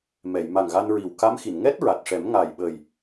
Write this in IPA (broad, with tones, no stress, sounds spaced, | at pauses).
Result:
m ɛ˨˩˨ j m a˨˩ ŋ ɣ a˧ n ɹ i˨˩ w k a˧˥ m x i˨˩˨ n ŋ ɛ˦˥ t̚ ɹ a˨˩ t̚ ʂ ɛ˨˩˦ m ŋ a˨˩ j ɓ ə˨˩ j